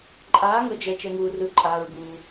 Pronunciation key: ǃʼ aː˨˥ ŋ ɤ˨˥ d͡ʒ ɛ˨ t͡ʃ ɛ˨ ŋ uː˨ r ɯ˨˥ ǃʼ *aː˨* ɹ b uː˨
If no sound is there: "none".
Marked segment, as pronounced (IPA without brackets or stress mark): aː˨